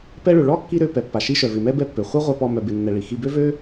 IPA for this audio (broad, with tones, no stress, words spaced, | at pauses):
pɛ˧ɭø˩ ɭɔ˥ kːi˥ɾø˧ pɛ˩pːa˩ʃi˧ ʃœ˩vɪ˩mɛ˥ bɛ˥pːø˩ χʷœ˥ʁʷœ˧pɔ˧ mœ˧bɪ˧nːɛ˧ɭi˩ xi˧bø˥vø˥